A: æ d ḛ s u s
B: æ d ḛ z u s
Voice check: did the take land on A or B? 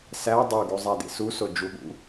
A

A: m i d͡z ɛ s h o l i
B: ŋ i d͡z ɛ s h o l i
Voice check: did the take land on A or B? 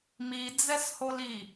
A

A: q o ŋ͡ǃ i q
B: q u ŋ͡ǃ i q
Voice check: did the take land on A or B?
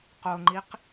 A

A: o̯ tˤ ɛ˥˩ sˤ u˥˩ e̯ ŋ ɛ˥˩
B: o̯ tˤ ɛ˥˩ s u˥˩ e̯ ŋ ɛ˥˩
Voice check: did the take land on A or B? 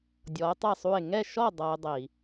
A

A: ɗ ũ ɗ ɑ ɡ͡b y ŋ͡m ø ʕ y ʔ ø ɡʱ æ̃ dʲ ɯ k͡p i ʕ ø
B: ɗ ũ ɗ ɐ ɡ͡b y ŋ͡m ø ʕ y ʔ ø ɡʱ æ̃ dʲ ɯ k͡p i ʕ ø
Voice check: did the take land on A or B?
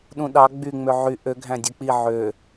A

